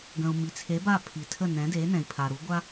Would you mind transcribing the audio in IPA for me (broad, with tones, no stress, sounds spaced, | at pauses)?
ɡ ə̃˩ u̯ m i˩ t͡sʰ e˩˥ b a˥˩ pʰ i˩ tʰ ə˥˩ n ɛ̃˩˥ d e˩˥ n ɛ̃˩ i̯ pʰ a˩ ɾ u˩˥ ɡʷ a˥